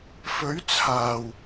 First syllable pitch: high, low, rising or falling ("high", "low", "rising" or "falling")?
rising